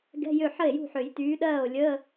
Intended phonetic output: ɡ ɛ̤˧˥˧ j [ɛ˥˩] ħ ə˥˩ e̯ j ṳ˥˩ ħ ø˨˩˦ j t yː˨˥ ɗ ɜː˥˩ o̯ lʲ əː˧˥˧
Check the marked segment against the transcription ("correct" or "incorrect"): incorrect